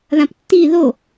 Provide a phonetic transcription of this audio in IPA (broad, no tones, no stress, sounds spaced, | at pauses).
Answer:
ð ã p tː i ð o